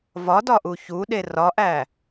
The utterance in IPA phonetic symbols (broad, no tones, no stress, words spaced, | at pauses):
vɒdɒʔu çuɗe rɒʔæ